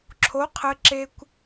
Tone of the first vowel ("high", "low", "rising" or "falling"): rising